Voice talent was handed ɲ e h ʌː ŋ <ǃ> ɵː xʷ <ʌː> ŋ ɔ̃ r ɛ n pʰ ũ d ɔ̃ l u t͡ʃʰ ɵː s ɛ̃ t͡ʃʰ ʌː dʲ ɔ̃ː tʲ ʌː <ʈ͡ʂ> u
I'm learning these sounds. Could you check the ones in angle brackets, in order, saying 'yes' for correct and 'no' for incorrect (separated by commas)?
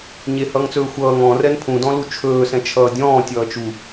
no, yes, no